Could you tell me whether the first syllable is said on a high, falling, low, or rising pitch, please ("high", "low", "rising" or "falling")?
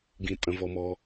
low